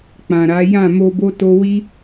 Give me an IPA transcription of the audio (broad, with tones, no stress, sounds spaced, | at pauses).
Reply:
k͡p ã˨ ɾ a˨˦ j ã˦˨ m o˧ b o˦ t o˦ w i˦